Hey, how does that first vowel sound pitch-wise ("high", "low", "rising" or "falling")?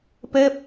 falling